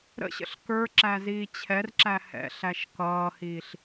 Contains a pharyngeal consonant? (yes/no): no